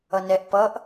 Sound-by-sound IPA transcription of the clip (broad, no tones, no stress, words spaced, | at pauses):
ʌnɛʔ pʌʔ